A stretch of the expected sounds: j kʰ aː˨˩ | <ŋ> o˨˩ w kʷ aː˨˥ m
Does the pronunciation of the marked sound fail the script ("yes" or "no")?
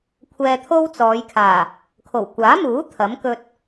yes